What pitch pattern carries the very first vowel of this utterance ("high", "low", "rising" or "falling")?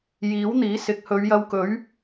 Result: rising